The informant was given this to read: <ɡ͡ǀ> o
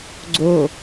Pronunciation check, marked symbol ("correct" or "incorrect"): correct